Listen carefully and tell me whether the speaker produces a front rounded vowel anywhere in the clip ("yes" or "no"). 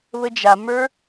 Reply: no